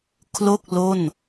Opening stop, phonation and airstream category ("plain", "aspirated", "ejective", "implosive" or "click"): aspirated